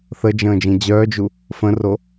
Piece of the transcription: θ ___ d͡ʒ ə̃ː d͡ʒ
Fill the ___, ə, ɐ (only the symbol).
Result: ə